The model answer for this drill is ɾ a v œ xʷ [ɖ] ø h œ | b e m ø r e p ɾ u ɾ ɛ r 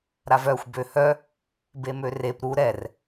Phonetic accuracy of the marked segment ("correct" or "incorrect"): incorrect